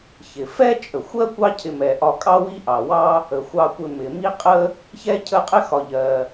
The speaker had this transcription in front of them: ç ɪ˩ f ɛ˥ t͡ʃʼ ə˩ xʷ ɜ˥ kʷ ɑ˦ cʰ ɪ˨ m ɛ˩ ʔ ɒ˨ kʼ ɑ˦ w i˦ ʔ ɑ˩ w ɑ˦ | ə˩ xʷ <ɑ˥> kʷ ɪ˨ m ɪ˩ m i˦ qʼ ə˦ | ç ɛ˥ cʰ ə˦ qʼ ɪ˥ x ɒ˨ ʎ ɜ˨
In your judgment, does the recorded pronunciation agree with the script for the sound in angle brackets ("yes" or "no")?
no